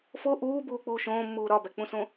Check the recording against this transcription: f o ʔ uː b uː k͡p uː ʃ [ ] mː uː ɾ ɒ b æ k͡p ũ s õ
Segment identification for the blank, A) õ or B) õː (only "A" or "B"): B